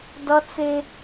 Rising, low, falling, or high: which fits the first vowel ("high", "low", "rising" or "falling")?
high